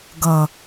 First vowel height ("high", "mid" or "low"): mid